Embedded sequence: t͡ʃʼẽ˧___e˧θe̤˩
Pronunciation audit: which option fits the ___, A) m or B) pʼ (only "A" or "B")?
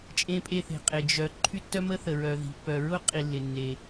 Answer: B